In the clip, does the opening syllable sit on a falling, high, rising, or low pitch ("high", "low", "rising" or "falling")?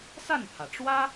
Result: falling